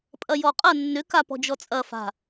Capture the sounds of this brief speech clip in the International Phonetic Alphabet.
pʼɐjɔqʼɐ nːʏ kapɔ̤d͡ʒɔt͡sʼɐ fa̤

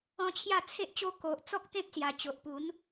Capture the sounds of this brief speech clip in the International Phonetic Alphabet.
ɔ̃˧ t͡ɕʰja˥˧t͡sʰe˦ʔt͡ɕo˦ ko˨ʔ t͡sɔ˦k̚t̪ẽ˦p̚sja˨˩t͡ɕo˨ʔ pu˨˦n

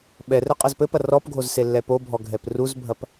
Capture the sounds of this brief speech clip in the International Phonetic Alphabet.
ɓɛrɛ qʼɐzpɘpɐ rɔpɡʱoz selːɛpobʱɔ ɡʱɛpruzbʱɐp

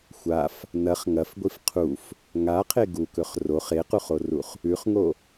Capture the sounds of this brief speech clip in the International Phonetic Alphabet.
xʷaf | nɐχ ŋɐfɡʷif qʰuf | ŋaqʰe ɡukɵχ roχ equχoruχ | ʉχŋo

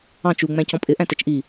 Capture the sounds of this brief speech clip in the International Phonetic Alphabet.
ɑ̃ t͡ʃu ŋ͡mæ̃cɔ̃pʼɪ ʔæ̃tɛt͡ʃʔi

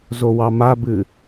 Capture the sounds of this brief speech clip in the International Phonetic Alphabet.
zowɑmabɨ

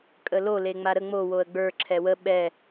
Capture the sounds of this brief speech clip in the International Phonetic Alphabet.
kʼəlo leŋ͡maɾə ŋ͡mo woə̯ɡ͡bə˞ ǁʰɛwə ɓɛ

